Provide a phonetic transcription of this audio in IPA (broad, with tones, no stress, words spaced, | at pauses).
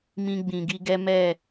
mĩ˧ɡ͡bĩ˨ɡi˧ɡɛ˦ mɛ˦˨